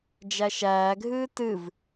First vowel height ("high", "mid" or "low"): low